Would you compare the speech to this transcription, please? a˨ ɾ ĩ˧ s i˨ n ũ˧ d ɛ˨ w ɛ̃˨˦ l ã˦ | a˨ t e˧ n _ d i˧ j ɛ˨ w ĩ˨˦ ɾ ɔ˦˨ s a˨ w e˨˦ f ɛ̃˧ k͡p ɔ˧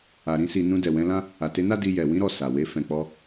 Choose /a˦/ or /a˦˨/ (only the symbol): a˦